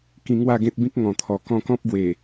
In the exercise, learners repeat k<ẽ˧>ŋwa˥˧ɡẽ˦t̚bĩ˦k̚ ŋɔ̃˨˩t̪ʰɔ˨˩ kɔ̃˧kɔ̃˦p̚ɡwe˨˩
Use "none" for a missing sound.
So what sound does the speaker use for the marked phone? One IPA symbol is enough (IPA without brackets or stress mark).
ĩ˧